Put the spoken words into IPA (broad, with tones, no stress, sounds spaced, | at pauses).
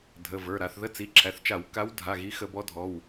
dʱ ə˩˧˩ v ə˞˩˧˩ ɾ a˩˧ θ ð ə˧˥˧ t͡s i˩˧˩ ǁʰ æ˩˧˩ θ t͡ʃ a˧˩˧ w k a˧˥ w dʱ a˩˧˩ ɣ i˧˥ x ə˧˩˧ b ɔ˧˥ dʱ ɔ˩˧˩ w